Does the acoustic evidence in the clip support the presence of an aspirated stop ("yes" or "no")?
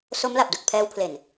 yes